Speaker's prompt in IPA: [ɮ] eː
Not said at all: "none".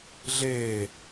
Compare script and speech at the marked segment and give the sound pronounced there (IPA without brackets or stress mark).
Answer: ɮ